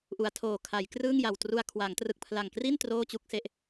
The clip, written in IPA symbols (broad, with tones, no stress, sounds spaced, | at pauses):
ʔ u˧ a̯ tʰ oː˨˩ kʰ a˩˦ j k r ɯː˥˩ ŋ j a˨˩ w t r u˧ a̯ kʰ w a˩˦ ŋ t r ɯ˨˩ k̚ pʰ l a˨˩ ŋ k r i˥˩ n t r oː˥˩ t͡ɕ u˥˩ k̚ s e˦˥ ʔ